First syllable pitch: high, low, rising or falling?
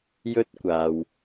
high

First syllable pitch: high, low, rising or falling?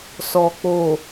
low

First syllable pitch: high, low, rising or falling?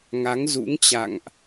rising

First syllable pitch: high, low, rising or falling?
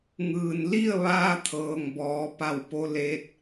low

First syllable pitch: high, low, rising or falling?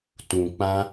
low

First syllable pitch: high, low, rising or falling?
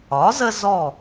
rising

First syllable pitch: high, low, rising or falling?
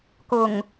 low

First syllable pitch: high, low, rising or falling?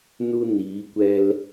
high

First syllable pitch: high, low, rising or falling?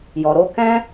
low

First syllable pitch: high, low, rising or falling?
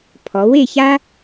rising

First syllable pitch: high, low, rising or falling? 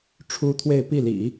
high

